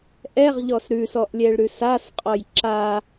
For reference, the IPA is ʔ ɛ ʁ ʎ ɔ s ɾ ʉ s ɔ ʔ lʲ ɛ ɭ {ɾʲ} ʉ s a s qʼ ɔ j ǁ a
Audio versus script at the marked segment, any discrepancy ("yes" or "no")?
yes